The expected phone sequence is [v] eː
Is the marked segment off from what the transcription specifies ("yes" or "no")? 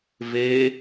no